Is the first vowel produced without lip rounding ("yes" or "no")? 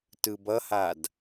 yes